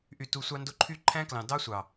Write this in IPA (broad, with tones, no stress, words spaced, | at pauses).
ʔy˨tu˨ sʷɑ˧ndo˧ ǃʰy˦˨ ǃʰæ̃˦klɑ̃˨ dɑ˦sʷɑ˨